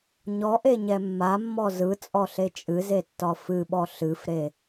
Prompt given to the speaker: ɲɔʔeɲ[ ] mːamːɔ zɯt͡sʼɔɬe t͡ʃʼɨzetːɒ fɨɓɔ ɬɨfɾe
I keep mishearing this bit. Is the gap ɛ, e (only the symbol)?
ɛ